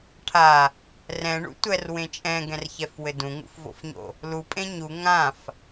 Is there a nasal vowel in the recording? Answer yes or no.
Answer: yes